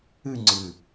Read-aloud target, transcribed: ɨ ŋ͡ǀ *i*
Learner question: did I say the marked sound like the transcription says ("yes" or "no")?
no